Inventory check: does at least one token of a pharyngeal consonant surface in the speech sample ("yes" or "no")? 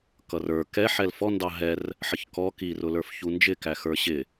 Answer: yes